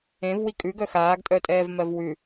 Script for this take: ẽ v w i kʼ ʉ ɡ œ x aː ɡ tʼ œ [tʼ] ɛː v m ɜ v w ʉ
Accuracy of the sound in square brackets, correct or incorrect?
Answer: correct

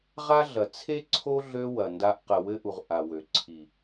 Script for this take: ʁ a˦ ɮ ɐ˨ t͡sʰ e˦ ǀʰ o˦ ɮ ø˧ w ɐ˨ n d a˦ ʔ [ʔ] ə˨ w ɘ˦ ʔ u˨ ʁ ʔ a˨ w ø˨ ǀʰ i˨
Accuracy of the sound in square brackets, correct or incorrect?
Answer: incorrect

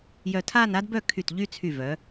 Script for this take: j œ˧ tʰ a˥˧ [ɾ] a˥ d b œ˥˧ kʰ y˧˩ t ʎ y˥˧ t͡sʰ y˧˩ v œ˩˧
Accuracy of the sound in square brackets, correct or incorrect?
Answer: incorrect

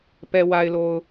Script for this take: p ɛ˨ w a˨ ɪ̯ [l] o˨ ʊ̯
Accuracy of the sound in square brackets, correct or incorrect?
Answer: correct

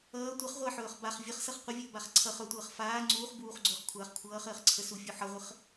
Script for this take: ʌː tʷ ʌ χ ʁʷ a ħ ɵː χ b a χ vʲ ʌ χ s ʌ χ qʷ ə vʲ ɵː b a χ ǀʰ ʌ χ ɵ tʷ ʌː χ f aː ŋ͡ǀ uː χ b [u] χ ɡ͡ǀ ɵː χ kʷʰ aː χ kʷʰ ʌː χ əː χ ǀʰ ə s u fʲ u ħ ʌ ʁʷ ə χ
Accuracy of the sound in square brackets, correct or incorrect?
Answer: incorrect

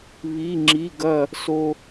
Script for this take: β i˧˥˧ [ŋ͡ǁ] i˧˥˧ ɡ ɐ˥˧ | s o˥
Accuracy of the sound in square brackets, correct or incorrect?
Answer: correct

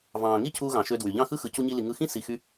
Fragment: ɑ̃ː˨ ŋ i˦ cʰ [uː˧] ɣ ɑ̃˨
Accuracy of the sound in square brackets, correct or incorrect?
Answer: correct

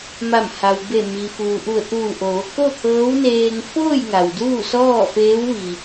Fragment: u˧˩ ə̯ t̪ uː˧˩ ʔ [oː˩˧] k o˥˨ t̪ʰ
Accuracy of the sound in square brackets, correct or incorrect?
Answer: correct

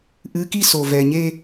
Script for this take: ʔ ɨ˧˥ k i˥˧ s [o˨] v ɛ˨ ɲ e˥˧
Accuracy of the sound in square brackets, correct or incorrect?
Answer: correct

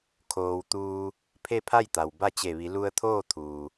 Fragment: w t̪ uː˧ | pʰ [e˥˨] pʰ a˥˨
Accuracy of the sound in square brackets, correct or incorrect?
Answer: correct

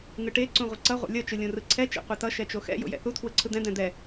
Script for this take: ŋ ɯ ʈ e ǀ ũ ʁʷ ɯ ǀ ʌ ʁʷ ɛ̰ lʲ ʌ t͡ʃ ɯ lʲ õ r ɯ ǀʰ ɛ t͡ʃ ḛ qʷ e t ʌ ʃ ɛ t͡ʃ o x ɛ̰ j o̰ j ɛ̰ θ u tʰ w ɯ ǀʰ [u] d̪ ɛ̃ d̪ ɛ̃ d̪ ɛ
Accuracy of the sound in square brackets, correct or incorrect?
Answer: incorrect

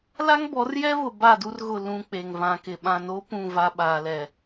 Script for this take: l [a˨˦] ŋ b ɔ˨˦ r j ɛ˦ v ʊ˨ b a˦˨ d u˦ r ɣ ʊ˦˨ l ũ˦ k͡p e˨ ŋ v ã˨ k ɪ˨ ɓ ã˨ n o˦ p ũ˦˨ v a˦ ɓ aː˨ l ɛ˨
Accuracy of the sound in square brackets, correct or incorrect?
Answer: incorrect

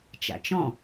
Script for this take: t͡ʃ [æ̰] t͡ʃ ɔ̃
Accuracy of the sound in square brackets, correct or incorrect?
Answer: incorrect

